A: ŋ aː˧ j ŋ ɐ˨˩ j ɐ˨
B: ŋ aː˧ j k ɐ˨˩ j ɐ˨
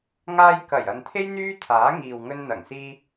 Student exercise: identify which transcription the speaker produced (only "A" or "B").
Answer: B